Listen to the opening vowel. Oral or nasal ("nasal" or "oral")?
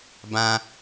nasal